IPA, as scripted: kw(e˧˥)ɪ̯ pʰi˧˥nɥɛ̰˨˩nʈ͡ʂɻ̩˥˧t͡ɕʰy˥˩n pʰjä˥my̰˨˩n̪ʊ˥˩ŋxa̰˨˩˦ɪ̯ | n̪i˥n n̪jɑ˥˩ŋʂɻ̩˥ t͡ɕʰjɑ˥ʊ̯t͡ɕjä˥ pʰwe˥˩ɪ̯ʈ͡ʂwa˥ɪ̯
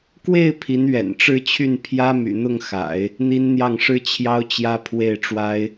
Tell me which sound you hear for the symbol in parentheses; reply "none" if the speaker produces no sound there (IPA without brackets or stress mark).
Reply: e˥˩